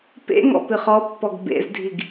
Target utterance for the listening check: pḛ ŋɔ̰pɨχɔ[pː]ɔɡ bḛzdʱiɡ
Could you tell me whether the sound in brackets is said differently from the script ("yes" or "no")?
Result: no